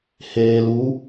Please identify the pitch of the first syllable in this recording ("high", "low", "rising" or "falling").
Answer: low